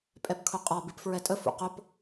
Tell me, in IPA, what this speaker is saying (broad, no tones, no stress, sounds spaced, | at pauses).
pʼ ɛ p kʰ ʊ qʼ ɒ b i p f ɹ ɛ tʼ ə f ṵ q ʊ p